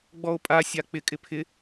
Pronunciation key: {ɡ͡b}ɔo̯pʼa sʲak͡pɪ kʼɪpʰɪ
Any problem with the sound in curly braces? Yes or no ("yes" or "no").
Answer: no